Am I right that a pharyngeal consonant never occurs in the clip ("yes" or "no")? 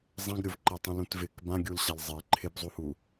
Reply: yes